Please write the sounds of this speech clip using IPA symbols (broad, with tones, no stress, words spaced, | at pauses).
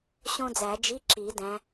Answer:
ɕõ˥d͡zæ˨˩˦ d͡ʒi˧˥˧ ǁi˨˩˦dæ̃˨˦